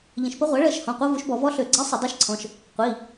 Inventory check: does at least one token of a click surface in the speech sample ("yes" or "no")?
yes